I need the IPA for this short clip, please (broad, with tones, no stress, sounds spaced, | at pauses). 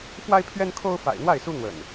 f w a˦ ɪ̯ pʰ ɥ ɛ˦ n kʰ o˦ ʊ̯ f a̰˨˩ ɪ̯ n̪ w a˥˨ ɪ̯ s u˦ n̪ w ə̰˨˩ n